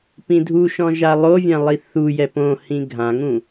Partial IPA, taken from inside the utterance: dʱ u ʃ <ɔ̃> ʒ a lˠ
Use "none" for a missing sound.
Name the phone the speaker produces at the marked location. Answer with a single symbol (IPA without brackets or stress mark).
ɔ̃